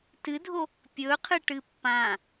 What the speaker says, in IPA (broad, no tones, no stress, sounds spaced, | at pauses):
t ɨ dʱ o | pʲ ɵ qʰ ɨ ʈ ɨ pː ã